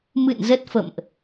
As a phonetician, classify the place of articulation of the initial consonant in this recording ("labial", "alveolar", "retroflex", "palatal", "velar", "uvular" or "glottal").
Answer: labial